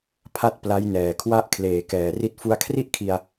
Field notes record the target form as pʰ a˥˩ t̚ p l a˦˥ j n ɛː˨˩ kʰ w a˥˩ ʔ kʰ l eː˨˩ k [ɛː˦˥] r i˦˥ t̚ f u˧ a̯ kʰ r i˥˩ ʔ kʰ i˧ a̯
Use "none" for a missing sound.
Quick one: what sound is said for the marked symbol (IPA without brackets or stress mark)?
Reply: ɛː˨˩